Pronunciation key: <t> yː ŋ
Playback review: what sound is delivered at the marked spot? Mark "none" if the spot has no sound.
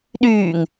ɗ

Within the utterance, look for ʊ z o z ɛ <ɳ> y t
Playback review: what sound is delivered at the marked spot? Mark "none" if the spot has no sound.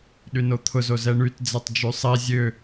ɳ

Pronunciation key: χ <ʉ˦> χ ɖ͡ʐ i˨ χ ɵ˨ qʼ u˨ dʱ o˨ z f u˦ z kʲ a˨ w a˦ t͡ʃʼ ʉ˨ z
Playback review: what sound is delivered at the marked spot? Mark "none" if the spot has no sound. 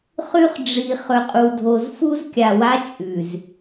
ʉ˦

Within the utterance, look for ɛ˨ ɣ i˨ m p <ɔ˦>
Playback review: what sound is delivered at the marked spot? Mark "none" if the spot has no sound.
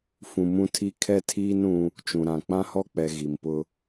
ʊ˦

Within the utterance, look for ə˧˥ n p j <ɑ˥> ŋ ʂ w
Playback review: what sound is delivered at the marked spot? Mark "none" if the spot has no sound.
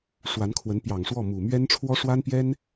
ɑ˨˩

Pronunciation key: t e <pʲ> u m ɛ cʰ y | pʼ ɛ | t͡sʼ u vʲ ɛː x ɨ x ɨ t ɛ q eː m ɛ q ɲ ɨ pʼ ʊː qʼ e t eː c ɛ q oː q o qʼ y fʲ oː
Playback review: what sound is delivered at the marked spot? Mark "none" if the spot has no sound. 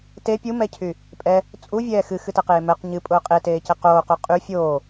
pʲ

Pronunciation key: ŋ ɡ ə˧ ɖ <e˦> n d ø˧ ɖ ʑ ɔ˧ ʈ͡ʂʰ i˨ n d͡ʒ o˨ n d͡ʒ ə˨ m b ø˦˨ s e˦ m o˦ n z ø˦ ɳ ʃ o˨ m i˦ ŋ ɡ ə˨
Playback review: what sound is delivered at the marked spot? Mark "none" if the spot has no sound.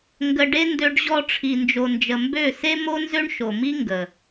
e˦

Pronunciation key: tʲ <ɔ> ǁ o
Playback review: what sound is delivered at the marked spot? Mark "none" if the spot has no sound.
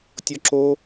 ɔ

